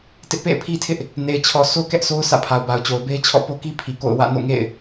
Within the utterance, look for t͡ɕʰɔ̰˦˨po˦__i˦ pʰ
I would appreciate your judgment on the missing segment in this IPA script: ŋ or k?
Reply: k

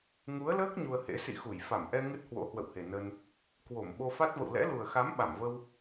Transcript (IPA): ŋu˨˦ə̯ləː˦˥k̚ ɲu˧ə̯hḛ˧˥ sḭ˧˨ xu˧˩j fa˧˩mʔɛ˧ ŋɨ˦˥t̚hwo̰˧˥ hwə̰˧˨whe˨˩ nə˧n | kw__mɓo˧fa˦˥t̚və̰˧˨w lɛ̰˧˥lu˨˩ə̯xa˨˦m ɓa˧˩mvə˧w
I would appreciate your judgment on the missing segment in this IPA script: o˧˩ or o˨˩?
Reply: o˧˩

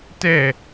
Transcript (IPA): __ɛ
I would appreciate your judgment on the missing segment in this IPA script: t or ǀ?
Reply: t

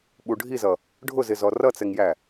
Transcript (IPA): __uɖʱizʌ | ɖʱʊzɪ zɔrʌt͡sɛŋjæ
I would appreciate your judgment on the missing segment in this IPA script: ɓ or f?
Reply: ɓ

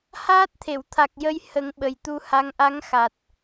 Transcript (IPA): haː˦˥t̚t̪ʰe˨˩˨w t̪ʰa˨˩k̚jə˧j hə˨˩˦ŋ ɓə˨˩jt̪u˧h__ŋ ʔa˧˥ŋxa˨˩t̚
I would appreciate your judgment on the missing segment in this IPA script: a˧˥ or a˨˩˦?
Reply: a˧˥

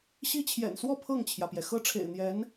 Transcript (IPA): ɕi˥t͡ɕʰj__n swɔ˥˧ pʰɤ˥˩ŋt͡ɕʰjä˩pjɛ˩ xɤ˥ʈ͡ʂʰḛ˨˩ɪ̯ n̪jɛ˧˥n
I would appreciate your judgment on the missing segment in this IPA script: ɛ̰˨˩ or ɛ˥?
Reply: ɛ̰˨˩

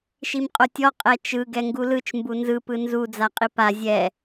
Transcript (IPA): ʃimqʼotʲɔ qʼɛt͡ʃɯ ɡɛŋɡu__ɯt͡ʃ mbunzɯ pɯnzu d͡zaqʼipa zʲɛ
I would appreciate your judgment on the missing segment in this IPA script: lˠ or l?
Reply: l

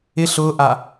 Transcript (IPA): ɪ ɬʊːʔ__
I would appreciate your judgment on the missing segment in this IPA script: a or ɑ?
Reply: a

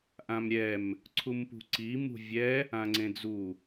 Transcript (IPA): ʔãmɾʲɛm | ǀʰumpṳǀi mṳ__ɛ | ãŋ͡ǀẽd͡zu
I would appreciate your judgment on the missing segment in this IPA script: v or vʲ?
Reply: vʲ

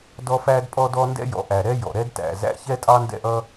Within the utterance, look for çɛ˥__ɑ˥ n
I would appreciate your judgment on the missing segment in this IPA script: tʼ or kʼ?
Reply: tʼ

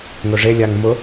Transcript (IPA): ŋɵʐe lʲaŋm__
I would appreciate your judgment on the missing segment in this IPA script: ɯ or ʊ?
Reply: ʊ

